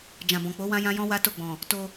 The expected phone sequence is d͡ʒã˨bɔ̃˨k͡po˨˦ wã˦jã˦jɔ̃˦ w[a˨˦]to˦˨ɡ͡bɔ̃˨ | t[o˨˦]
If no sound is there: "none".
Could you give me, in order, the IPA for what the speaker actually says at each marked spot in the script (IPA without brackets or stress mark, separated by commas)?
a˦, o˧